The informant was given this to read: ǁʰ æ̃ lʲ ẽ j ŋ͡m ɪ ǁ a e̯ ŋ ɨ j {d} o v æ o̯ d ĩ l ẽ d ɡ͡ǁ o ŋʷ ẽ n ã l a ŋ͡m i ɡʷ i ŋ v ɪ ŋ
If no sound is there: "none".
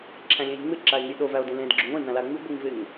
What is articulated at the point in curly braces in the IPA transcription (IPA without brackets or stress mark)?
ɗ